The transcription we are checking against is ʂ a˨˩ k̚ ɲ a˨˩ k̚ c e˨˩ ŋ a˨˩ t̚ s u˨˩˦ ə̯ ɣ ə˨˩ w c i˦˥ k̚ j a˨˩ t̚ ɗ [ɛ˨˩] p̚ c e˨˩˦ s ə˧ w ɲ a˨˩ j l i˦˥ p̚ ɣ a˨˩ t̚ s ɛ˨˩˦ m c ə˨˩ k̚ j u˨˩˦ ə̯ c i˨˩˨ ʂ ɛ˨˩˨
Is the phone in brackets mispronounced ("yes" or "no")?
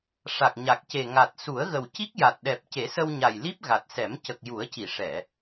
no